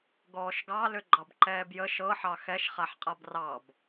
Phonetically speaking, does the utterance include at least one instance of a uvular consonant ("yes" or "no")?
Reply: yes